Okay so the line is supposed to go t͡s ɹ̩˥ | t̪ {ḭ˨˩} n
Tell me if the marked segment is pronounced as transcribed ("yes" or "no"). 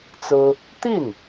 no